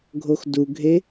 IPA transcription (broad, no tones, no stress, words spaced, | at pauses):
ɡʱoxduɡʱe